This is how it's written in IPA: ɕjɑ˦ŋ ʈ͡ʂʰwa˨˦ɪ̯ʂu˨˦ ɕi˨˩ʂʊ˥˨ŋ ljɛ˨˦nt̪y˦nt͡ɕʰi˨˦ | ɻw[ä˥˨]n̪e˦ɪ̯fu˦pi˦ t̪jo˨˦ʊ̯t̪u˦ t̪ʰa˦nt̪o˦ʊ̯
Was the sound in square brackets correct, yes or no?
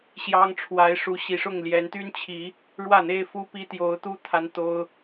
yes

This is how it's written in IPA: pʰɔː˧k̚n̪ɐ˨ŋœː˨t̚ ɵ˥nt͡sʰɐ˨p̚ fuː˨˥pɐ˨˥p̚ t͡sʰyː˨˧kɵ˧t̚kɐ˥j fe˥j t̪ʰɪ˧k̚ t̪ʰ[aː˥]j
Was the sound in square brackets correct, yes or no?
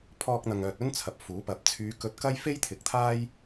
yes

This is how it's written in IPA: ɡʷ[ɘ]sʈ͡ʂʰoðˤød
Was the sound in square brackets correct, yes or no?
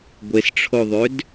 no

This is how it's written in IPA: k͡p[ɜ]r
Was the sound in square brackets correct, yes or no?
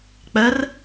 yes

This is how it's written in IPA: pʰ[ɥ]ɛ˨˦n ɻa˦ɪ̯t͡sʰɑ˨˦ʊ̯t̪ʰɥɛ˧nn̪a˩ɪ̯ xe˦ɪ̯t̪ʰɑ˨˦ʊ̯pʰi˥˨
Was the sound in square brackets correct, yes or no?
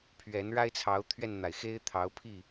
yes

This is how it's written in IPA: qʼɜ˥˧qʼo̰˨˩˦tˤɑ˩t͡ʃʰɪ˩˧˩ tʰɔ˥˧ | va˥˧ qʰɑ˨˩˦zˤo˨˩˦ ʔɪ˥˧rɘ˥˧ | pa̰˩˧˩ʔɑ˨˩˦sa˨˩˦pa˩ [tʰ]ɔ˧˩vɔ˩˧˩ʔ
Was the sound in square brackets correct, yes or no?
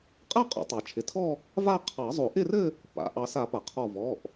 no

